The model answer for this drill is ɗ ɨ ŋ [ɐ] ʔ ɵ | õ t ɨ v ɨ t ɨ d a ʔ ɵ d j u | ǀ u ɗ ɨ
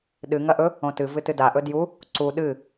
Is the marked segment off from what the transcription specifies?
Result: no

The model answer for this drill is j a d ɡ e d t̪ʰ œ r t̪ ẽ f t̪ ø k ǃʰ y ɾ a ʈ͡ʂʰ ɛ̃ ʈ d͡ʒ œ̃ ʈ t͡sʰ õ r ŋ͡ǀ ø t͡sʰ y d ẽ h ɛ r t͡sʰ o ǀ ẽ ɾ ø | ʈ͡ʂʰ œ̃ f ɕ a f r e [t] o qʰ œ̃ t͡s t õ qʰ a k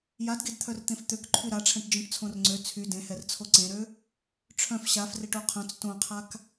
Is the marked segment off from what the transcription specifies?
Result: yes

